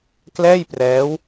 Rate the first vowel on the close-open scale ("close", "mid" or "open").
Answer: mid